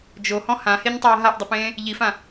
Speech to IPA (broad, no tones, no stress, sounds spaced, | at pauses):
d͡ʒ o h ɔ̃ h ã h e ɲ tˤ ʌː ɦ a ʔ dˤ ə p ẽː | ʎ i f ã